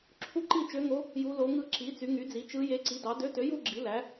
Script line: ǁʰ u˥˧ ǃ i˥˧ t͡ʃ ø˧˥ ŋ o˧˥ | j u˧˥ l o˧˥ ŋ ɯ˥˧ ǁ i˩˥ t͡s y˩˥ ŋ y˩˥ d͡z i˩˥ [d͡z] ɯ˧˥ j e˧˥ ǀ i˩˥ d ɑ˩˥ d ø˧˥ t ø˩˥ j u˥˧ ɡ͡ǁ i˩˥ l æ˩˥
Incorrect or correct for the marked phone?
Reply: incorrect: t͡ʃ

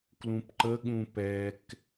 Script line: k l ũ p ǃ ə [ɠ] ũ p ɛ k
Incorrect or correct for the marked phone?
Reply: correct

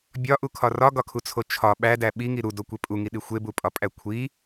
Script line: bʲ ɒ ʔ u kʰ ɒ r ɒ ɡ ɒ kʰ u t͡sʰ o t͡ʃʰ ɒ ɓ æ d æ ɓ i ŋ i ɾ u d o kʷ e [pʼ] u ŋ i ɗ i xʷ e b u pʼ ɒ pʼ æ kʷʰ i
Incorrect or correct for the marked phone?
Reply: correct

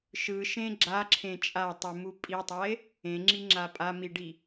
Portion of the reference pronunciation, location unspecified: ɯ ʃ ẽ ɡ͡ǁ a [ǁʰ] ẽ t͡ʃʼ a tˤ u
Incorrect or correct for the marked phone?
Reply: correct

